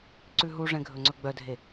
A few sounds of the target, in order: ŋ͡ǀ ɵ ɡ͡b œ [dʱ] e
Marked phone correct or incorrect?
correct